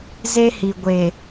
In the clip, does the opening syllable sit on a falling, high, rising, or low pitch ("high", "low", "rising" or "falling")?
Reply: high